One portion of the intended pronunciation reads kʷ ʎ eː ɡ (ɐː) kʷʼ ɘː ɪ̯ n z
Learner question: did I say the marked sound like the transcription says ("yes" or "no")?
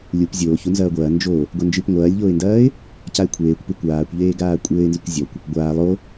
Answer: no